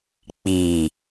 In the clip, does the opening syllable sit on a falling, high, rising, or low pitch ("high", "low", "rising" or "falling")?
low